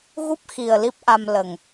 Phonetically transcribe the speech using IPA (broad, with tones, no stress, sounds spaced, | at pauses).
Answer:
ɣ u˦˥ p̚ x i˨˩ ə̯ l i˦˥ p̚ ʔ a˧ m l ə˨˩ ŋ